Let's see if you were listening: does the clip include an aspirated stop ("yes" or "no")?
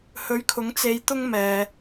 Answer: yes